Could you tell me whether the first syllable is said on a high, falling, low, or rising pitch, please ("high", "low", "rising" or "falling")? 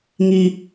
high